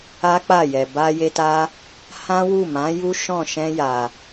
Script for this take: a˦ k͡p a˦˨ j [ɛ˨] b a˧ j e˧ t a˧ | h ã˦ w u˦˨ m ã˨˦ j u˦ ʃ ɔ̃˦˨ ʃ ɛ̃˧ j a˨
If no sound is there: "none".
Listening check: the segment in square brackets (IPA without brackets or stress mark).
ɛ˨